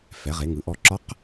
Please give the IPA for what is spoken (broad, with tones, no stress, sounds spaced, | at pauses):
f ɛ˩˧ ʁ e˩˧ ŋ ɯ˩˧ ʔ ɔ˧ ǁ ɒ˧˥ q